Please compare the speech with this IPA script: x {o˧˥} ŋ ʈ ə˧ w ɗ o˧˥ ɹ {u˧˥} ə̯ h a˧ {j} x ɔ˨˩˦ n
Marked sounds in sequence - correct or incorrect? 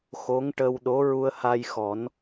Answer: correct, incorrect: u˧, correct

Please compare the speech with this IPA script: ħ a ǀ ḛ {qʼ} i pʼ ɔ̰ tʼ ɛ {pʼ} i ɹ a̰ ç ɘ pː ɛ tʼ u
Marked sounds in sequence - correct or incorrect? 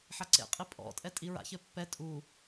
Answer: correct, incorrect: tʼ

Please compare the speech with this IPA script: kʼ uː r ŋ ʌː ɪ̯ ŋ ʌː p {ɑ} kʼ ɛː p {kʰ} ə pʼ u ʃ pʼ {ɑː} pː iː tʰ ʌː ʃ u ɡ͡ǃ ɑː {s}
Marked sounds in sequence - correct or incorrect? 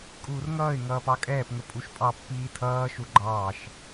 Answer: correct, incorrect: ŋ, incorrect: ɑ, incorrect: ʃ

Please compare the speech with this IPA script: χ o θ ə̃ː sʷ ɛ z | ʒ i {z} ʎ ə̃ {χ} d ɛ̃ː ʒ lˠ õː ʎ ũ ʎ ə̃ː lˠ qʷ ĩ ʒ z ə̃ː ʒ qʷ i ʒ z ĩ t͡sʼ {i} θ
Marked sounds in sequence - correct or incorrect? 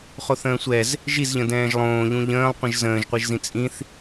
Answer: correct, incorrect: none, incorrect: ĩ

